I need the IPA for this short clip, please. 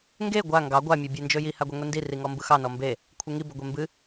ŋɡe ɡʷa ŋɡɑ ɡʷa mʲɑbʲend͡ʒɵji haɡʷɑŋʷindi riŋɔmbɯxɑ nɔmbe | kʷʰɯŋi bɵɡʷembɨ

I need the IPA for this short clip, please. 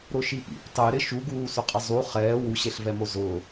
ɾʊʃipḭp tˤeɾɪ ʃuɡuːsʊqʼɪ zˤu χɛː wuɕeɬvɛmo zʊː

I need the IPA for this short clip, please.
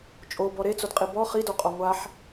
t͡ʃʼobɔ ɾet͡sodqʼi bɔ χidoqʼɔ ŋʷaħ

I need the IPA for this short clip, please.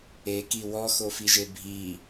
eki wɔxofiʒe bʱi

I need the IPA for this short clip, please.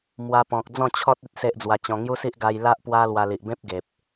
mwa˧pɔ̃˨k̚ d͡zɔ̃˥˧t͡ɕʰɔ˦t̚ i˦t̚se˦ʔd͡zwa˧t͡ɕɔ̃˧ ŋju˦si˦ʔ ɡa˧jla˦ʔpwa˦lwa˧ li˨ʔbẽ˦p̚ ɡe˨p̚

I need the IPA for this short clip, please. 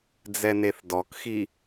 d͡zɛneθdɔkxi

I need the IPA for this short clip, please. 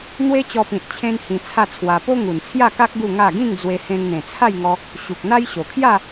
n̪we˦t͡ɕɔ˧pĩ˨t̚ t͡ɕʰẽ˦nhĩ˧t͡sʰa˥˧t͡sʰwa˧ po˦ŋu˨˩nt͡sʰja˥˧ka˦k̚ ɡu˥˧ŋa˥˧ ɡĩ˥˧ŋd͡zwe˧ hẽ˧ŋn̪ẽ˨˩t͡sʰa˥˧jŋɔ˧ | ɕu˨k̚ n̪a˦jɕo˨˩ kʰja˥˧

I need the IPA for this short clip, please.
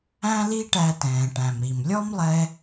æ̃˥li˥ʈæ˧tɛ̃ː˩ ʈæ̃˩mɾi˩m lʲɔ˥mlˠɛ˧

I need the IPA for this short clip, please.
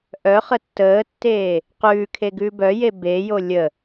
ʔœχə tːəːtːeː | qʉːkʰe ɡʉːbœje beːjo lʲə

